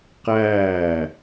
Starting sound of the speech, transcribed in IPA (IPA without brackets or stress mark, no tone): q